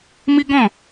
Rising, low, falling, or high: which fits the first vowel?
high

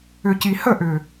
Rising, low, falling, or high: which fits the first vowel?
low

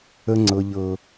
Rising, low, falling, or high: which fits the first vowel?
high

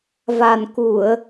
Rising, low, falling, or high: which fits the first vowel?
low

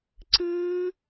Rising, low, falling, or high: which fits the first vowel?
high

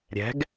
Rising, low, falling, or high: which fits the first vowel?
rising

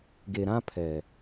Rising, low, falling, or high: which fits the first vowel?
low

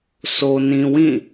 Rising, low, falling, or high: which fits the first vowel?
low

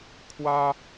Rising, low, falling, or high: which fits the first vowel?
high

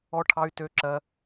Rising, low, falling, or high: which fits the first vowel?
high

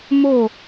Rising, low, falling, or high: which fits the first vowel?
falling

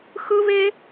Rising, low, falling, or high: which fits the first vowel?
high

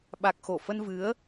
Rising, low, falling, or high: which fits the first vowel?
low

